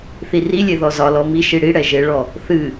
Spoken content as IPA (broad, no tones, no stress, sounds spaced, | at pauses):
θ i r i lʲ e ð ɔ z ɒ l ɔ m i ʃ i ɽ i ɽ ɛ ʒ e ɭ ɔ | θ ɨ